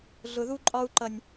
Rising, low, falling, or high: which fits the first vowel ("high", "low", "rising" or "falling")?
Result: high